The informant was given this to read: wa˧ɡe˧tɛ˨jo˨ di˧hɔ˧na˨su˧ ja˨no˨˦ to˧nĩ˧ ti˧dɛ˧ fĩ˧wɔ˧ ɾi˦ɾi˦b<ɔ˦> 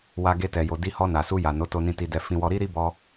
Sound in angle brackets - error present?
yes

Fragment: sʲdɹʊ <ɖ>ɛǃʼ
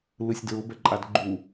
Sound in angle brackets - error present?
yes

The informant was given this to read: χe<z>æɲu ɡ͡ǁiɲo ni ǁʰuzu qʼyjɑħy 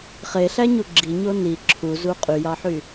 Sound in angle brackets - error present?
yes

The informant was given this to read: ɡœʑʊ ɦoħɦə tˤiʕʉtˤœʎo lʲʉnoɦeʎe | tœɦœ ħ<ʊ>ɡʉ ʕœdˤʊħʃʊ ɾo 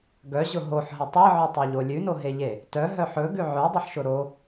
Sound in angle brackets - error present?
yes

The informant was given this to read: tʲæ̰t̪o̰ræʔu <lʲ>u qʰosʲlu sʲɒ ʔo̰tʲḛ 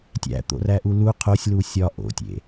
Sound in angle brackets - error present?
yes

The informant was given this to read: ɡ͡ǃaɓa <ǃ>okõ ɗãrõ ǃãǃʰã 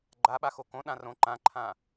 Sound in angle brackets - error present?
yes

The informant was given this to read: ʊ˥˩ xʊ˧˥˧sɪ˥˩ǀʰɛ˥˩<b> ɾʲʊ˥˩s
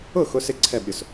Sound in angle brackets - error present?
no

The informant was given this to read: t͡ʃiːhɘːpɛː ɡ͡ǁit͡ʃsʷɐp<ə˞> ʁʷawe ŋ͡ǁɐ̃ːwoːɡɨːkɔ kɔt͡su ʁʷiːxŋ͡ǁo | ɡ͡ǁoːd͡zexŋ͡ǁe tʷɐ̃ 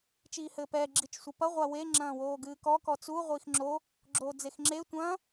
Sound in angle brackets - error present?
yes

